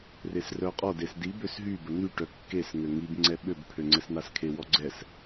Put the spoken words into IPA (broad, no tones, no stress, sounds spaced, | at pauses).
r e s r œ qʼ ɔ d e s d i b ø s ɦ y b ə n̪ y ʈ œ kː e s ŋ ø ŋ i b ŋ͡ǀ ɛ ɓ ø b pʰ ø ŋ͡ǀ ɛ s n̪ a s kʰ e w ɔ ɡ͡ǀ ɛ s